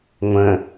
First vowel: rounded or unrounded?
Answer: unrounded